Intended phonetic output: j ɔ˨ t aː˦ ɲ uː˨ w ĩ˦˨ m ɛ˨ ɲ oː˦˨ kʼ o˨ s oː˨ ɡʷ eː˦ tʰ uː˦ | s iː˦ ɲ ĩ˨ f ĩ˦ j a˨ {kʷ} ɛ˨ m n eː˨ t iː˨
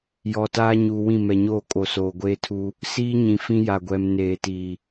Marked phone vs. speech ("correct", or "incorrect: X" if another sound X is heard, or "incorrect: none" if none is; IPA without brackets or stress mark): incorrect: ɡʷ